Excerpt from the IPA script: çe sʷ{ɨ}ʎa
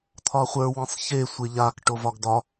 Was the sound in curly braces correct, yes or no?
no